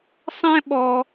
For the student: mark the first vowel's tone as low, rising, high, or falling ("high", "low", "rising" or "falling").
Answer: high